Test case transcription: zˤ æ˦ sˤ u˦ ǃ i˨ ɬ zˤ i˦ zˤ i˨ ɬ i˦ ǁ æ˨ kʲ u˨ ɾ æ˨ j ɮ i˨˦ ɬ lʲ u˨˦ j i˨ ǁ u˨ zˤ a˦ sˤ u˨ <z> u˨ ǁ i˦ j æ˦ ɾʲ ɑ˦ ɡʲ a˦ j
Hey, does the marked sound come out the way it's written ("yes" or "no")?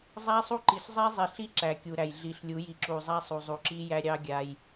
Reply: no